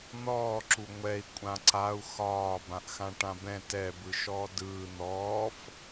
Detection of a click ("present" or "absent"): present